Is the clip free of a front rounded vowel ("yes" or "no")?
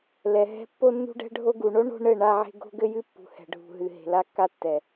yes